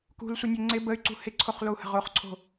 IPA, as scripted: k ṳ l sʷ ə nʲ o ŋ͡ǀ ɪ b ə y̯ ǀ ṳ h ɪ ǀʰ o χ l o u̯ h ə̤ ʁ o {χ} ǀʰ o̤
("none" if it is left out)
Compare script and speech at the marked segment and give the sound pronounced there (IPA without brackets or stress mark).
χ